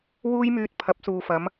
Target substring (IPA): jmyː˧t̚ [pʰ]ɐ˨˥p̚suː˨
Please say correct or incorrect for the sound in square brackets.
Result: correct